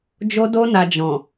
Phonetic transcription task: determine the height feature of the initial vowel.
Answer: mid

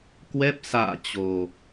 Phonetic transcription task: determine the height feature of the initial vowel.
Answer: mid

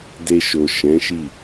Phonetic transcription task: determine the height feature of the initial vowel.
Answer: mid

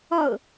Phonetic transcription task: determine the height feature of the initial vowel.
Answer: mid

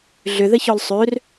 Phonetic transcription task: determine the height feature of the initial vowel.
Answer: high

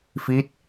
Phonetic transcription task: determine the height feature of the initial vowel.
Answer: high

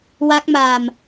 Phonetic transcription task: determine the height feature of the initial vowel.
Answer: low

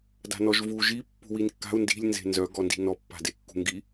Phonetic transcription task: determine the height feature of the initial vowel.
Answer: low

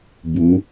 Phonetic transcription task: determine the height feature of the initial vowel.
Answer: high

